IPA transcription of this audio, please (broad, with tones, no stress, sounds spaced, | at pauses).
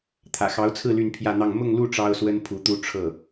t̪ʰ ä̰˨˩ x ɑ˧˥ ʊ̯ t͡sʰ ɹ̩˥˧ l y˥˧ n pʰ j ä˥˧ n̪ ɑ˥˧ ŋ m ʊ˥˧ ŋ l u˥˩ ʈ͡ʂ ɑ˥ ʊ̯ s w ə˥ n pʰ u˧˥ t̪ u˥ ʈ͡ʂʰ ɤ˥˩